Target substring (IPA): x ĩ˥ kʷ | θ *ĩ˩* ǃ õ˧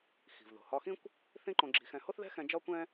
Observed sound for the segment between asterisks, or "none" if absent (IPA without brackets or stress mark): ĩ˥